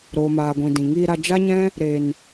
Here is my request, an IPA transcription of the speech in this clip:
ɾ oː˨ m aː˨ ɡʷ ĩ˨ d ĩ˨ ŋ iː˧ ɾ a˧ d͡ʒ a˦ ɲ ɛ̃˦ | ɾ e˨ n

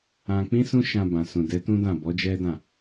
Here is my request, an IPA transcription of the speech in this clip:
ã˧ k͡p ĩ˦ s ũ˦ ʃ ã˧ b ã˨ s ũ˨ d ɛ˨˦ t ũ˦ d ã˦˨ b ɔ˨˦ d͡ʒ ɛ˦ d ã˦˨

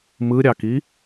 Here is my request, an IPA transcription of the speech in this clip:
m ɯ ɾʲ ɑ k i

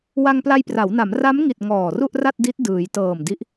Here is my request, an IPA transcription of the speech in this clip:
w a˧ ŋ p l a˧ j p r a˩˦ w n a˩˦ m r a˦˥ m ŋ i˨˩ t̚ ŋ ɔː˨˩ r u˥˩ ʔ r a˥˩ t̚ d i˦˥ t̚ d ɯː˩˦ j t ɤː˨˩ m d i˦˥ ʔ

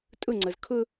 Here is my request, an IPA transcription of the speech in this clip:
tʼ ʊ ŋ͡ǀ ɤ z kʰ ʊ

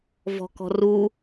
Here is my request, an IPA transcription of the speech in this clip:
v ɔ̤ k ɔ̤ r u

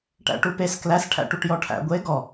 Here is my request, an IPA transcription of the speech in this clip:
ʈ æ̰ ʈ u p e s k l æ s ʈʰ æ̰ ʈ u ʈ j ɔ ʈʰ æ̰ ɡʷ e ɡ ɔ

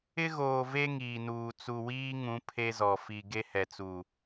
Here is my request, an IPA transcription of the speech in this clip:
ɪ˦ ɣ oː˨ v e˦ ŋ iː˨ n uː˨ t͡s u˨ w iː˦ ŋ ũ˨˦ pʰ e˦ z ɔ˨ f i˨ ɡ e˦ h ɛ˨ t͡s u˨

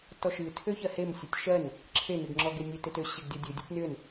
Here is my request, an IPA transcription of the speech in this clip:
t ɔ ʃ ɨ tʰ ø ç ɜ h e m sʲ œ tʲ ʃ ɜ n | ǁʰ e n ɨ ɡ ŋ͡ǁ ɔ ɡ e nʲ e t e t ø ɕ e ɡ dʲ ɔ dʲ ɨ dʲ œ tʲ n ø n

